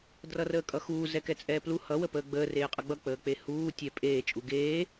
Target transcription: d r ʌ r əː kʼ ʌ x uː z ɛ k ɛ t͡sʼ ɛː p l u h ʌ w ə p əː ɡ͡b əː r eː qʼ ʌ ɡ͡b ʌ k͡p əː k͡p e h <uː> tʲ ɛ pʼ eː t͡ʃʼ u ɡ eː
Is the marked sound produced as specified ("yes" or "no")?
yes